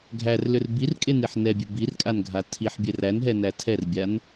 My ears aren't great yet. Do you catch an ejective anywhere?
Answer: yes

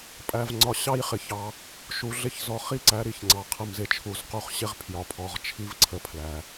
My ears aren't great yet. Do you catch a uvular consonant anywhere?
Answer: yes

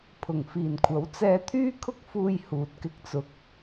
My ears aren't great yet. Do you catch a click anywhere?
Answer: no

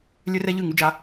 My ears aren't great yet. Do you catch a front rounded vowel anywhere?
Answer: yes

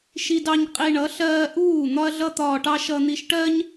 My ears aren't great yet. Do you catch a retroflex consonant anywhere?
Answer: yes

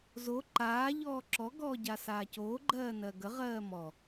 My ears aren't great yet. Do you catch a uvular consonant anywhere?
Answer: yes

